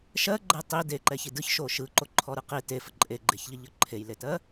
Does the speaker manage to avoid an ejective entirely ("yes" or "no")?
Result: no